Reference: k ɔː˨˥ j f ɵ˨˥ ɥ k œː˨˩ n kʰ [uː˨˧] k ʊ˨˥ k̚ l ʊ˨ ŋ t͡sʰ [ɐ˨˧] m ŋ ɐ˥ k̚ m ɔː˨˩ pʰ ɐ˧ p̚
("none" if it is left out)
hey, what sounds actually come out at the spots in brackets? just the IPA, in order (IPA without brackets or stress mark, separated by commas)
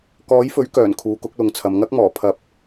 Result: uː˨˧, ɐ˨˧